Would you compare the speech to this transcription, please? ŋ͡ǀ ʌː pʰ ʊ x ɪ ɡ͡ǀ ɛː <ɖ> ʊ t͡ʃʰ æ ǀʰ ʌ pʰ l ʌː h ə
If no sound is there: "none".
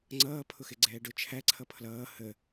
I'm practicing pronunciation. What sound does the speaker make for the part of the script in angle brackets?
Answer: ɖ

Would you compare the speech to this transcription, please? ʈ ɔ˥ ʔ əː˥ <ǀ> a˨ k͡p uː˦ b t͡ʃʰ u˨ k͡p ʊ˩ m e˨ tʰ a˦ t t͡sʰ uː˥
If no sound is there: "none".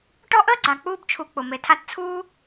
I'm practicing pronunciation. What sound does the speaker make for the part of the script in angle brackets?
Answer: ɡ͡ǀ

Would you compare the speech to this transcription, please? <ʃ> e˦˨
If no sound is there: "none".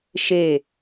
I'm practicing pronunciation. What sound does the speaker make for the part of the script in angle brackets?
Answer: ʃ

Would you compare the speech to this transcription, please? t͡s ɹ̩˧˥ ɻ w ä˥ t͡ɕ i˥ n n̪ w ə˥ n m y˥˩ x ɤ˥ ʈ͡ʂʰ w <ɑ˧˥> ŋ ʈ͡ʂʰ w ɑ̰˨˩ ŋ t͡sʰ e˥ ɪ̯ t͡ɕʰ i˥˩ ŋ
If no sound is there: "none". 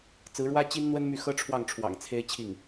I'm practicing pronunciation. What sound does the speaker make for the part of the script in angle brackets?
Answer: ɑ˥˩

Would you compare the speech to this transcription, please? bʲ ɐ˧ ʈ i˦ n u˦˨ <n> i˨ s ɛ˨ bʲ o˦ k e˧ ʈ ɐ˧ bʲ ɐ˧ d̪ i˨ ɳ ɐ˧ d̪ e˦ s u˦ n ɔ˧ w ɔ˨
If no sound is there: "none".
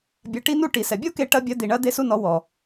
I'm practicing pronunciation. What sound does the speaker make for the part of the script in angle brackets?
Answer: ʈ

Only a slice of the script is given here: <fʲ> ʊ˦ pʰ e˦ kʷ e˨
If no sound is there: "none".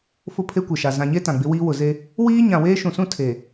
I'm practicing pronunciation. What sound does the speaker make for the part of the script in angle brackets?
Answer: f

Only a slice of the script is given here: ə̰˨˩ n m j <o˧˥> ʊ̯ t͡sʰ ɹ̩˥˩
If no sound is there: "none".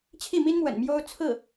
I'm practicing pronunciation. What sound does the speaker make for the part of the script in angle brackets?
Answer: o˥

